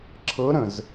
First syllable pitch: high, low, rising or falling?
rising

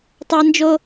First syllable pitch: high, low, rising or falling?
high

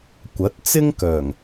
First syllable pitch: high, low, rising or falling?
rising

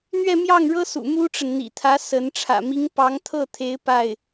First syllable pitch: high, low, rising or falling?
falling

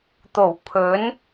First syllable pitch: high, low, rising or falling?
low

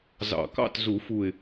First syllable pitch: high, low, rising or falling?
low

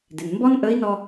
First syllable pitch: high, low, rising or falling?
low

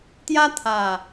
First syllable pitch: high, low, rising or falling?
high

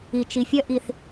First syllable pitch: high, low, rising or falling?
low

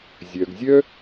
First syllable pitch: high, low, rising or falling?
low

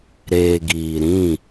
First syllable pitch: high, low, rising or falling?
low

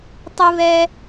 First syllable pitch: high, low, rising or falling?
high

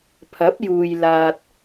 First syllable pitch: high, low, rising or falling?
rising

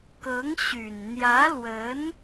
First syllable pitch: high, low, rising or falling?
rising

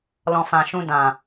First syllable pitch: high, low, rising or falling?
low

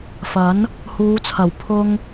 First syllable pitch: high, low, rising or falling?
rising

